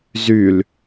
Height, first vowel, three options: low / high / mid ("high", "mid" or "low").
high